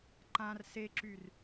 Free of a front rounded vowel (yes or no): no